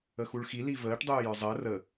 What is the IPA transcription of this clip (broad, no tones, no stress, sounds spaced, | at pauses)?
ə x u ɭ x i l i v əː ʈ dˤ uː j ə˞ zˤ əː r ə